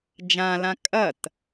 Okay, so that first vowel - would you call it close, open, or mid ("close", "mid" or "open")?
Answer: open